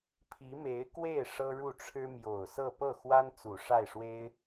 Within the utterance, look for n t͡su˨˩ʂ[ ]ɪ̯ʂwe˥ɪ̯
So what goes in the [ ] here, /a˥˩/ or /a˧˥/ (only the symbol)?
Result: a˥˩